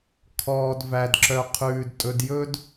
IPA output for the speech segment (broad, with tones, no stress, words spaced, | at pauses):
kʰɔː˨d væ˩dǁœ˩ qʰʉː˩d tʼɵ˨d jɵ˥d